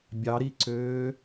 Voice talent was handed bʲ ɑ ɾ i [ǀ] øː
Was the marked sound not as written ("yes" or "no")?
no